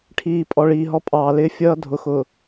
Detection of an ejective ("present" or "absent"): present